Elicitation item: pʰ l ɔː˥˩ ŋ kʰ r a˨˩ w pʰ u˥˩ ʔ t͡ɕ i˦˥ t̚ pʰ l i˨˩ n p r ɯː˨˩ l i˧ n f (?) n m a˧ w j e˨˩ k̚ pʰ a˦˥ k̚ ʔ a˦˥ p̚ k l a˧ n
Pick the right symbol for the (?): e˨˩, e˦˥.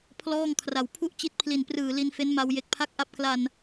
e˦˥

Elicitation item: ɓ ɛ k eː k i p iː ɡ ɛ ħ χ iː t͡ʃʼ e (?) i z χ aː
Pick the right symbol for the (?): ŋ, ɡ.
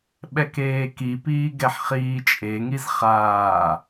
ŋ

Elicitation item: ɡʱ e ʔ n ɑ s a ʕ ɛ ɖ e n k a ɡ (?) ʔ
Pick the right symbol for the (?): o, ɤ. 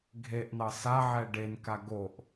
o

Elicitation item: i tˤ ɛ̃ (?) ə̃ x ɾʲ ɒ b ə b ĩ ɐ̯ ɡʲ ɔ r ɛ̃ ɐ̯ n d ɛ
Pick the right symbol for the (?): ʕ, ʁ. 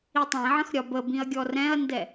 ʕ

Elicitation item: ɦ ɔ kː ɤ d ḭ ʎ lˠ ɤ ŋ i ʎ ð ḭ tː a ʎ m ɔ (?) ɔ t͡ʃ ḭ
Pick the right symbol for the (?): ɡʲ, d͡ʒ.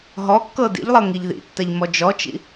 d͡ʒ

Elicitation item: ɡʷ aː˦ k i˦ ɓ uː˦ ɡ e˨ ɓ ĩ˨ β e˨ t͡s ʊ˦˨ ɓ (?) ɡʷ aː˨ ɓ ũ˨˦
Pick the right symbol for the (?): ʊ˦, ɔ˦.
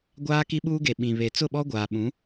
ɔ˦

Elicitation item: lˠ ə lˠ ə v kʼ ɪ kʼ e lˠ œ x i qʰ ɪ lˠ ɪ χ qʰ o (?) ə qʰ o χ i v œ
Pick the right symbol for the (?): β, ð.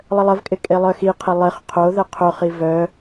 ð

